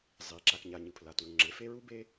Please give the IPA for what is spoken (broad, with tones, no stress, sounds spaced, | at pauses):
zˤ i˩ ǁ a˩ k ɲ a˩ ɲ ɯ˩ pʰ l a˩ t u˩ ŋ͡ǁ e˩ f e˥ ɹ u˥ b e˥